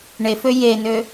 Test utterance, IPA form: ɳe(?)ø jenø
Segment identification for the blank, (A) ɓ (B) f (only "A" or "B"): B